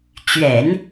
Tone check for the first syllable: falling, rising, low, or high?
low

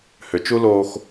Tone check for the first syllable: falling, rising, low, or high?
low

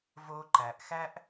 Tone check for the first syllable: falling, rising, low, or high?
high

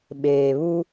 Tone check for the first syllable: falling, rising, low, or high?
low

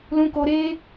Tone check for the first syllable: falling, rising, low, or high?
high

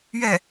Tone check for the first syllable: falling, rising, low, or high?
falling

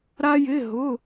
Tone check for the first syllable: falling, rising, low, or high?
high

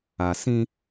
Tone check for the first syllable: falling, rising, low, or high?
low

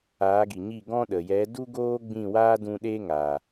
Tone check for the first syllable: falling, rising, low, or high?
rising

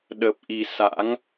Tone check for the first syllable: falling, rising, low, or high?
low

